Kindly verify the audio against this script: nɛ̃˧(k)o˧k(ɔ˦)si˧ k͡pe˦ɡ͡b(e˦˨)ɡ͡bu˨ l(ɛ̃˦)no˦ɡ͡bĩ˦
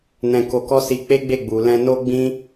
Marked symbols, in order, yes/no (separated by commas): yes, yes, yes, no